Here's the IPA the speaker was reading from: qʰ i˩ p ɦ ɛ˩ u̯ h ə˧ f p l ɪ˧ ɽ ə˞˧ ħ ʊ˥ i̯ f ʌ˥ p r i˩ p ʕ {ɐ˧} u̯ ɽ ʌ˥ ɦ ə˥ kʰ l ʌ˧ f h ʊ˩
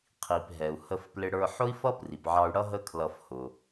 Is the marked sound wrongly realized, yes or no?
yes